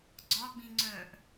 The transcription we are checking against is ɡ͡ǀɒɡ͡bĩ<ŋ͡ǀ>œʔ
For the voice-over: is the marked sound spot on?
yes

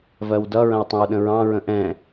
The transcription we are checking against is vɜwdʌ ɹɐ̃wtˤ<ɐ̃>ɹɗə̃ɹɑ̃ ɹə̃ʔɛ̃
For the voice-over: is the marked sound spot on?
yes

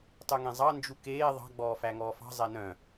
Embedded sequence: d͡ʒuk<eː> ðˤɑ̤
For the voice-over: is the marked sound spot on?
yes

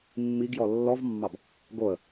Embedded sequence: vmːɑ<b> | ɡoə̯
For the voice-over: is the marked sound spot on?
yes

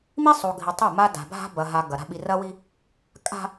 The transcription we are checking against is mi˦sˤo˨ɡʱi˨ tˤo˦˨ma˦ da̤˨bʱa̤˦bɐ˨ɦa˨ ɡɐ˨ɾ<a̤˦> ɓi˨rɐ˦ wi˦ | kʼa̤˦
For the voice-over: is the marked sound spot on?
yes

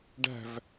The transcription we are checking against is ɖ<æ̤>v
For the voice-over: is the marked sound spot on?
yes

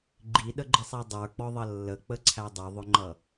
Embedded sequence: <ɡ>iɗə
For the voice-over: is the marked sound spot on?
no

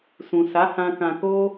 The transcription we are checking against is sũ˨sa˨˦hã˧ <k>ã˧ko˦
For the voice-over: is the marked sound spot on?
yes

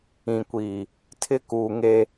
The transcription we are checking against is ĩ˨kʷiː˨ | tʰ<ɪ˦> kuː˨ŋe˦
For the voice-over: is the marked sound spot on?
yes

